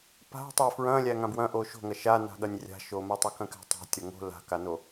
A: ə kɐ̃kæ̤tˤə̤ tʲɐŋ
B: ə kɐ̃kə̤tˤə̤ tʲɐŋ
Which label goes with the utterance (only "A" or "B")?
A